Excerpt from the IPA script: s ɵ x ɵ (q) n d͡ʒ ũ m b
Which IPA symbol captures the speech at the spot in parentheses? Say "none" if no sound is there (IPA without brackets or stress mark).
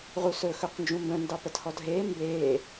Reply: q